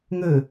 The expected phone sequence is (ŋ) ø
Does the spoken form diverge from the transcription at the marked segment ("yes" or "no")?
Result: no